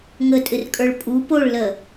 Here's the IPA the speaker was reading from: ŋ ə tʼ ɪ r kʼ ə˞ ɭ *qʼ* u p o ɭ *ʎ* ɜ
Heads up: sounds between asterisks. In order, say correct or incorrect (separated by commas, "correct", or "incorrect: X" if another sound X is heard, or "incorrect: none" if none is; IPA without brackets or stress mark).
incorrect: pʼ, incorrect: l